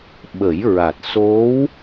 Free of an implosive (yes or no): no